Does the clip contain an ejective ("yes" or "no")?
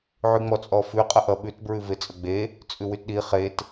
yes